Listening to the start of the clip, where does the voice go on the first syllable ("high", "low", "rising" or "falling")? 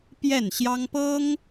falling